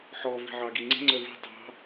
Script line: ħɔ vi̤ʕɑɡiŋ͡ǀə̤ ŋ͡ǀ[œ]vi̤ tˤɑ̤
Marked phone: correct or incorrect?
correct